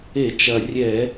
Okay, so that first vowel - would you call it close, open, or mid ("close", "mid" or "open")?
mid